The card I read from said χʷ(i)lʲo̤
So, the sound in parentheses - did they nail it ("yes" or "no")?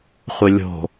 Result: no